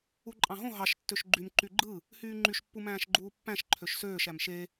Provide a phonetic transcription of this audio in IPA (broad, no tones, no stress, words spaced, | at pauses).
uǃʼɑ̃ɦõ ɦɑʃ tːøʃɡ͡ǃym ǃyɡ͡ǃɯ | hyːŋ͡ǃyʃ pːumæ̃ːʃɡ͡ǃuːpːæ̃ʃ ǃʰøʃsøːʃ æmʃe